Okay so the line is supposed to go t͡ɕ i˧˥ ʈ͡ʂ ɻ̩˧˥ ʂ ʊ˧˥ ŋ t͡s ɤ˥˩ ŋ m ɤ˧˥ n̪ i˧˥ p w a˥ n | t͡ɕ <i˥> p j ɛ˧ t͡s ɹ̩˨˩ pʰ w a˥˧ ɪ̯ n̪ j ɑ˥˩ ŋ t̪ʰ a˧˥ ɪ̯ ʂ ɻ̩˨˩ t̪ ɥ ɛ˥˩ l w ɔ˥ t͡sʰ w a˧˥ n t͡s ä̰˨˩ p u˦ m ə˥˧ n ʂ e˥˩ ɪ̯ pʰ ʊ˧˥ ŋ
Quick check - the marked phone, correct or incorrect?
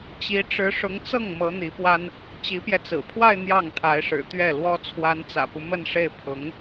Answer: incorrect